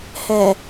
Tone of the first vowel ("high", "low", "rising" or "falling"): low